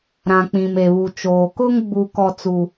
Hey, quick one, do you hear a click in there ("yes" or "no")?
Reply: no